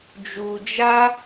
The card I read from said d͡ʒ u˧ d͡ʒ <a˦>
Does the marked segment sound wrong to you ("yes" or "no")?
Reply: no